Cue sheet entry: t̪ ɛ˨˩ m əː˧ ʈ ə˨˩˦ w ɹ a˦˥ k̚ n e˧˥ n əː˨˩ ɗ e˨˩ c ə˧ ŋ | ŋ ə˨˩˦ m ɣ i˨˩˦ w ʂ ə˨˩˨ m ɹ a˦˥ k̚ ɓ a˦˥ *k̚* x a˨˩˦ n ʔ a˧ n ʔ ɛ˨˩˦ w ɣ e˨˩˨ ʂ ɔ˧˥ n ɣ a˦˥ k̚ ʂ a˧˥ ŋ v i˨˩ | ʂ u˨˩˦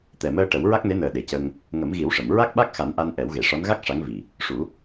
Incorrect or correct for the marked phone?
correct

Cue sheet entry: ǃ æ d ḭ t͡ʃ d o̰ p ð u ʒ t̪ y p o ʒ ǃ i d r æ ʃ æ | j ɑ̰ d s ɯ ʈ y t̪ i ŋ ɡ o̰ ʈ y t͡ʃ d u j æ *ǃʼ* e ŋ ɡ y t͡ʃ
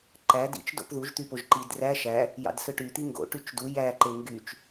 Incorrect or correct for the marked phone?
incorrect: ǃ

